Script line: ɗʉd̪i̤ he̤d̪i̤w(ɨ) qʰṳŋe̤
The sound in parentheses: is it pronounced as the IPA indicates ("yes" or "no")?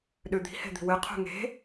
yes